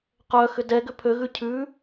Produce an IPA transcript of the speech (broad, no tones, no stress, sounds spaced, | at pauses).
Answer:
q œ x ʏ d ɛ ɡ ʏ pʰ ø ɣ ʉ cʰ ʉ